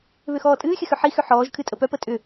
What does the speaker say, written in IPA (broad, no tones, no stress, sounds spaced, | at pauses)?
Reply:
β ʏ x ɔː tʼ ɨː xʲ ə x ʏ ħ i x ʏ ħ ɔː ʒ kʰ ɨ tʼ ə p œ p ə tʼ ʏ